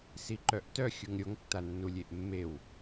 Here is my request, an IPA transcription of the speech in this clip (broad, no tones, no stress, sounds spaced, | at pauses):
s i ǃ œ ʔ t œ xʲ u ŋ ɾʲ o ŋ tː a nː u lʲ e ʔ mː e w